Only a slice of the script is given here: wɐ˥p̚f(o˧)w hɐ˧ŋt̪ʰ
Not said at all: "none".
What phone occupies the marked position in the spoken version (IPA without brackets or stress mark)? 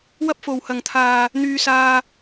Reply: o˧